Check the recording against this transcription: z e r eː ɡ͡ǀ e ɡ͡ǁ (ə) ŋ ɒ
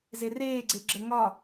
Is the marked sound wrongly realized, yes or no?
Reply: no